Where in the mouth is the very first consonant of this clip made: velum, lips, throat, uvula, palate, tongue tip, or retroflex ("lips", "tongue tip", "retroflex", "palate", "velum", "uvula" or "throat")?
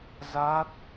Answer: tongue tip